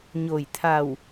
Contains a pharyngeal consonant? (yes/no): no